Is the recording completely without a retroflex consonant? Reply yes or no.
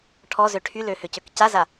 no